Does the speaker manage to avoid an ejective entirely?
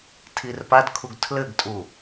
no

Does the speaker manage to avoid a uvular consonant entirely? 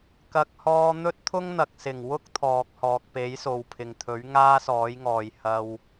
yes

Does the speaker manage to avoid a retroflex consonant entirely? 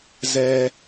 yes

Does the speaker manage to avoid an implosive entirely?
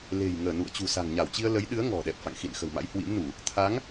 no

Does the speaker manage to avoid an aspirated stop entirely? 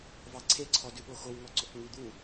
no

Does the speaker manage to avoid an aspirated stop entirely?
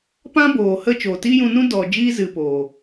yes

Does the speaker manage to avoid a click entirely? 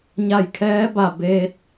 yes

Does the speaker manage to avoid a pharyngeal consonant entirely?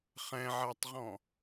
no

